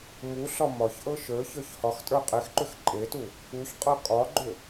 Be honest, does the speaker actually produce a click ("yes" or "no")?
yes